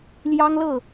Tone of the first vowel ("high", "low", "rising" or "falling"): high